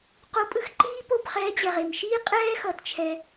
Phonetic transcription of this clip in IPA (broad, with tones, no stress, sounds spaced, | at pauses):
q o˨˦ pʼ ɯ˧ x ǃ iː˦ p o˦˨ b χ ɛː˨˦ d͡ʑ ɛ˨ ʁ e˨ m ʃ iː˦ qʼ ɛː˦ x ʌ˨ t t͡ʃʰ ɛ˧